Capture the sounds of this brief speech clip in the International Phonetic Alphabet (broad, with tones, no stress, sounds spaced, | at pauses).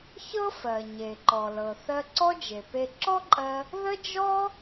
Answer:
ç ɤ˥ f ɜ˩ ɲ e˩ ǃ ɔ˩ l ɤ˩ θ ɜ˧ ǀ ɔ˥ d͡ʒ e˩ p e˧ ǁ ɔ˥ ǃʼ ɜ˧ | ð ə˥ d͡ʒ ɔ˥